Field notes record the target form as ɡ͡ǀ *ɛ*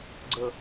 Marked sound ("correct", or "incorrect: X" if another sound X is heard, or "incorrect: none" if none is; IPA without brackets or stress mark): incorrect: ə